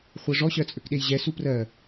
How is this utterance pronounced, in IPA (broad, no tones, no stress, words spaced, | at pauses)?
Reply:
χʷɜʐɔ ɕɜt͡sʼøkɗejʑɛ suprɜ